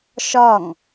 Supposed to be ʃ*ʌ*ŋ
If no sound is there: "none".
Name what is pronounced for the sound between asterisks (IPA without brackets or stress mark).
ɒ